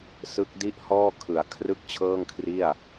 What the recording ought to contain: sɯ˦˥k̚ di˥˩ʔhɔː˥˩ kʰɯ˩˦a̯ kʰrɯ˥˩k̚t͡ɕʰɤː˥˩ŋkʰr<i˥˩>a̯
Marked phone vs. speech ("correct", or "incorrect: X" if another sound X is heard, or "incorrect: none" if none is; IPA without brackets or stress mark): correct